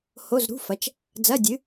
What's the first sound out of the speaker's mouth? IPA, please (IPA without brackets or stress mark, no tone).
h